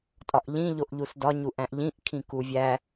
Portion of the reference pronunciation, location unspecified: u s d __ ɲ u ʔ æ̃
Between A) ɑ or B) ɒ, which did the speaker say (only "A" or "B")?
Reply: B